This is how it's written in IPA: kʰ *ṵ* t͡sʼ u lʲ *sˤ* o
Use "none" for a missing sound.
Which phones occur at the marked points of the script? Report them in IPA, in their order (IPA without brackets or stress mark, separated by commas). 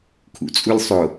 ṵ, sˤ